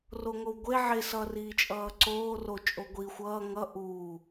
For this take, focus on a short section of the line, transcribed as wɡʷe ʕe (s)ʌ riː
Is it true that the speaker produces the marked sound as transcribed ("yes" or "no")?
yes